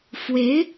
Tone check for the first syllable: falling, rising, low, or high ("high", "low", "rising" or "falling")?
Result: rising